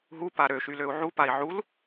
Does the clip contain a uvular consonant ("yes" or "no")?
no